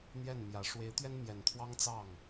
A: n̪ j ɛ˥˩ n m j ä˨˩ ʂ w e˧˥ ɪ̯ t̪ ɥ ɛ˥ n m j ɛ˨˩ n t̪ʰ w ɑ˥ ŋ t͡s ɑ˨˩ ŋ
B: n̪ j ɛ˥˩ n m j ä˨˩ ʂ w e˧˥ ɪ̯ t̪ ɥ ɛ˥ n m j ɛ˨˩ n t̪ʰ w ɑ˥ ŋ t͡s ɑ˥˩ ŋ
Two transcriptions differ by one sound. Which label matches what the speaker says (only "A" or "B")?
B